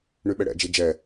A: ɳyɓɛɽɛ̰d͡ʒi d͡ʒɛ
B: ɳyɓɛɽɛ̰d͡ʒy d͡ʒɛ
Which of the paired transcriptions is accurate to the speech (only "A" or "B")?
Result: A